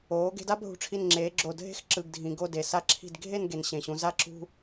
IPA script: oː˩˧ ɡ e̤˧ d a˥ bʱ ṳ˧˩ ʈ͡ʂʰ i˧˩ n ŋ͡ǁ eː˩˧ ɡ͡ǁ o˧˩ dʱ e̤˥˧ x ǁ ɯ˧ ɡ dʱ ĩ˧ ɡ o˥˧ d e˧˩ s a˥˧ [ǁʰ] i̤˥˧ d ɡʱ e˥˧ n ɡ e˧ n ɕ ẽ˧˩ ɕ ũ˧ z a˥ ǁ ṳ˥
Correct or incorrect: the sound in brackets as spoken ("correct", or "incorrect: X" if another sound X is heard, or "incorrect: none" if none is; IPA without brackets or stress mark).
correct